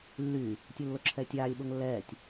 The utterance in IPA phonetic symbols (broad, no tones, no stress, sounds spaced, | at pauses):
lː y | tʲ u lː o ǁʰ ɛː tʲ aː lʲ ɓ o ŋ lː ɛː tʲ